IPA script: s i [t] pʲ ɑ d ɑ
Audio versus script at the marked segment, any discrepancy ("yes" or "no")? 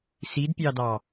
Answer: yes